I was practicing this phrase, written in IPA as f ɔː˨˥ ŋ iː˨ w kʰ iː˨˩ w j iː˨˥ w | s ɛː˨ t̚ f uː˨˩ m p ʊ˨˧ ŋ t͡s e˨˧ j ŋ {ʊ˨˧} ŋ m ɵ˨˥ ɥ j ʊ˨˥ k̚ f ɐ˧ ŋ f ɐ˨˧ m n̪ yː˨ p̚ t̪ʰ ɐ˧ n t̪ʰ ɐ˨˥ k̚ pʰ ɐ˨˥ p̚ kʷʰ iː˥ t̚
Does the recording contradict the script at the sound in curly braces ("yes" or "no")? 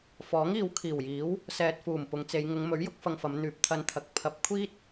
no